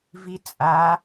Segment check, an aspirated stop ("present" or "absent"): absent